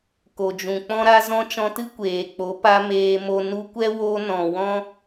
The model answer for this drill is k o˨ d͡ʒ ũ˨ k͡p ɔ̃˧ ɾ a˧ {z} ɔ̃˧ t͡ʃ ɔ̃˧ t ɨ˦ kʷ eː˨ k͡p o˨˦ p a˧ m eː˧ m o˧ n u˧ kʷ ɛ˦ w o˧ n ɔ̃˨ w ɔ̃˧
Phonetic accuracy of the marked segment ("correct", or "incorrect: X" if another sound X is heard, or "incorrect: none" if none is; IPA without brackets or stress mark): correct